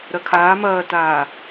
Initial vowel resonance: oral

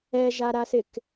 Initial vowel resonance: oral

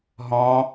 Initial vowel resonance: nasal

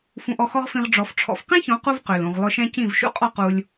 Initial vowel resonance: nasal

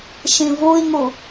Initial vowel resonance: nasal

